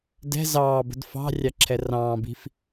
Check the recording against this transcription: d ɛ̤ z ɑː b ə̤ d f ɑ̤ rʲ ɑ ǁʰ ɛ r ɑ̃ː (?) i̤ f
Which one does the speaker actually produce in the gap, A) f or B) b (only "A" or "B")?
B